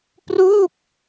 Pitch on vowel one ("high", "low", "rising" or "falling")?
falling